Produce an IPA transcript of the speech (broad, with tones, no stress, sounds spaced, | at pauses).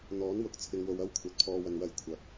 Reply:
n̪ ɔː˨˥ n w ʊ˨ k̚ t͡sʰ ɪ˧ ŋ w o˧ w ɐ˥ w kʷʰ ɐ˨˥ t̚ pʰ ɔː˨ w ɐ˨ n w ɐ˨ j kʷʰ ɐ˨ k̚